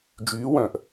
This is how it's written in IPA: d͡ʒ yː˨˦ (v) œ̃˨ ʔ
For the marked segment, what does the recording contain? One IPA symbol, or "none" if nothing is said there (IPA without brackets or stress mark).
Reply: w